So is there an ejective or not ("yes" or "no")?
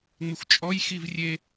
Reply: yes